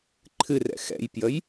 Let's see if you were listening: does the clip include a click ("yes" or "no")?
yes